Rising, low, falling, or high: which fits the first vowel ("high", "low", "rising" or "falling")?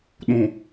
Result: low